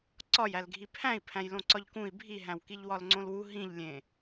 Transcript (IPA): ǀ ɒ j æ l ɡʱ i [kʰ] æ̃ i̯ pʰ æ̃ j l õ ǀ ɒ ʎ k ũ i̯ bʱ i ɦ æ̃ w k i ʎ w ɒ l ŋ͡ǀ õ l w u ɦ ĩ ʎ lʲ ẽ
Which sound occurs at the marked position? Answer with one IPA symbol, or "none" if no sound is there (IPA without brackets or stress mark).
pʰ